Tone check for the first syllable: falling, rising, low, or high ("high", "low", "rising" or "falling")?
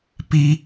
high